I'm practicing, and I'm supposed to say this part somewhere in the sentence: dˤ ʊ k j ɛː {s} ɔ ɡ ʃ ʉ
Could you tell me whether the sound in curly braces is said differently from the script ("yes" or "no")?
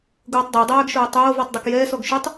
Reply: no